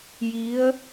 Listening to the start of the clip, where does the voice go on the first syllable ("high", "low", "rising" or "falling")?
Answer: rising